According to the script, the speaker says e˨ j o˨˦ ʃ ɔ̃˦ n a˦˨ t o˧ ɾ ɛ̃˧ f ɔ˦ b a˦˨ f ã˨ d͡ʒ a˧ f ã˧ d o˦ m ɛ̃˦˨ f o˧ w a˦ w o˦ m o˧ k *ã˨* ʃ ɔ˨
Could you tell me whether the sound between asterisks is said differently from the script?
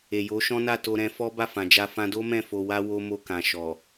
no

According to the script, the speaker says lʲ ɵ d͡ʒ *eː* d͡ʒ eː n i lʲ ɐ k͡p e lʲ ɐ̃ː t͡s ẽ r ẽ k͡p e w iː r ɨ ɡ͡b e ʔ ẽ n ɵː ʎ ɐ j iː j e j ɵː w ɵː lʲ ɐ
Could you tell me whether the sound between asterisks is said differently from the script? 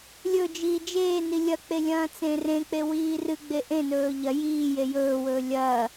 yes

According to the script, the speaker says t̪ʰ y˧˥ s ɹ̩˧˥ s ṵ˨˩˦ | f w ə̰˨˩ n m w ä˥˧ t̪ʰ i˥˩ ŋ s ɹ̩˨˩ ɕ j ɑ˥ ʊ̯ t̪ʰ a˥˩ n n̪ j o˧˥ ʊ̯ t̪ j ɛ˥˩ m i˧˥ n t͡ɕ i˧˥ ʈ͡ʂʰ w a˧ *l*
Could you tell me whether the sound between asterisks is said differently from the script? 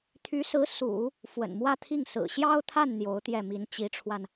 yes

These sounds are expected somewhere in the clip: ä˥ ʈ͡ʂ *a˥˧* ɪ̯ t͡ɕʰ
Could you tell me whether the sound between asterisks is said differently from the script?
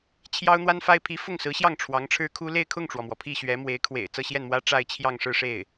no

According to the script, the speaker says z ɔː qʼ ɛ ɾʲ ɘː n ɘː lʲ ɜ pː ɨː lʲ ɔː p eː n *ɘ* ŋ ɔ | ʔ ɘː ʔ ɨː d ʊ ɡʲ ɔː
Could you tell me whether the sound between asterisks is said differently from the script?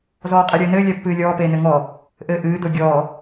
no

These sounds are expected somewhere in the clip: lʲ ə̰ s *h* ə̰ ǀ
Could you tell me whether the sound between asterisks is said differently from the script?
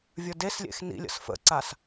yes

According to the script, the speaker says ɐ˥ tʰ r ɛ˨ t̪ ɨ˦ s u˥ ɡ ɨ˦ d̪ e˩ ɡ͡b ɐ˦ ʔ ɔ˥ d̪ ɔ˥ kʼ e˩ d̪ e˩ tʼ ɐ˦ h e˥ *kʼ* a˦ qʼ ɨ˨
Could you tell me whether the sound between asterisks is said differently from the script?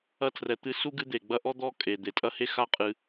yes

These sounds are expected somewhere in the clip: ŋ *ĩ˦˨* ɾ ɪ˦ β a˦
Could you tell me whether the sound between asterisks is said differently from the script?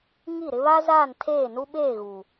yes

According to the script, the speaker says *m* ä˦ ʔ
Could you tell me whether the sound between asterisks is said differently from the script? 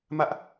no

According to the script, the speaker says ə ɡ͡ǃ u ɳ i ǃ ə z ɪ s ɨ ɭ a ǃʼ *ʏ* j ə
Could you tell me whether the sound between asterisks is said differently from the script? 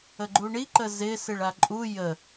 yes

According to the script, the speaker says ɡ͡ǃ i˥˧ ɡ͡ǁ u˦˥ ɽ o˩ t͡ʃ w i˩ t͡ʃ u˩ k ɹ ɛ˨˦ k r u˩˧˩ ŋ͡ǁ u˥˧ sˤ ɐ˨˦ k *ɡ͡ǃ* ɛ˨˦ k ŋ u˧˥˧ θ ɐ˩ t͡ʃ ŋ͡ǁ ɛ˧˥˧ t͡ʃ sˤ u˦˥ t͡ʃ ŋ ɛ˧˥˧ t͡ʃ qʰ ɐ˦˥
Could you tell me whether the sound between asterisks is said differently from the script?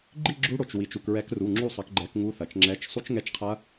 no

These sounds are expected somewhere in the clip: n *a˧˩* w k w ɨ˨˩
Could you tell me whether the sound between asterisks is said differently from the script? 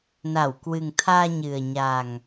no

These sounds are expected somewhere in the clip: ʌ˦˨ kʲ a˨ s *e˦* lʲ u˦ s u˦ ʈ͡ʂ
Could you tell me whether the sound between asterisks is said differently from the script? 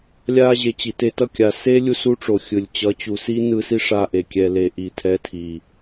no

